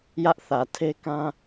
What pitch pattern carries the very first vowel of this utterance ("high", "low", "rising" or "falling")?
high